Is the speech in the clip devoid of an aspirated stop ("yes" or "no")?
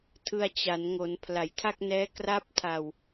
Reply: no